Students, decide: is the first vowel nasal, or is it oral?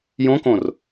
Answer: nasal